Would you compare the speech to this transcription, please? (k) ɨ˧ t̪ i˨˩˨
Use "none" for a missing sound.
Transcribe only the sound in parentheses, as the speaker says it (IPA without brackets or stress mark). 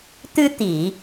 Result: t̪